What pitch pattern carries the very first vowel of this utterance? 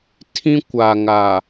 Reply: high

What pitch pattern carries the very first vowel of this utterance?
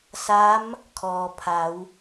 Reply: rising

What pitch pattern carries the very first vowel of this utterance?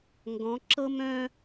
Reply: rising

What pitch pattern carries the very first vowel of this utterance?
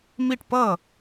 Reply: falling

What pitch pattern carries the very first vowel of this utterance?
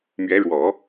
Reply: rising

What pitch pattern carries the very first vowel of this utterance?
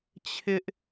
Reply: high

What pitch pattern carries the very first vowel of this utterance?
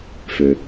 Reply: low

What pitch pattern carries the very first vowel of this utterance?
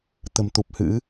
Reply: low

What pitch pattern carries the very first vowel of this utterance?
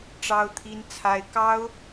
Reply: high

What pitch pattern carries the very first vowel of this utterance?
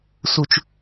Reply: low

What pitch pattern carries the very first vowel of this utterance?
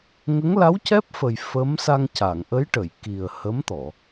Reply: rising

